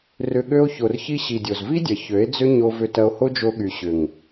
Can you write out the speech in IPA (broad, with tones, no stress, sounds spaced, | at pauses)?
r ʏ˧ ɠ ø˧ o̯ ç o˨ r ç i˧ ɕ i˨ dʲ o˨ z v i˦ dʲ ɐ˨ ç ø˨˦ e̯ d͡z ʏ˦ ɲ o˧ v ʏ˧ t ɐ˧ o̯ h o˦ d͡ʒ o˧ ɠ y˨ ɕ ʏ˨ ŋ